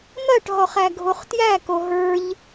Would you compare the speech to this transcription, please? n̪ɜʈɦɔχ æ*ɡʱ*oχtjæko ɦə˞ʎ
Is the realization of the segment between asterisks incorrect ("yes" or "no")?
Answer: no